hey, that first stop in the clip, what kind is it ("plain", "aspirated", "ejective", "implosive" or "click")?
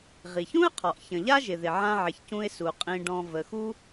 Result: aspirated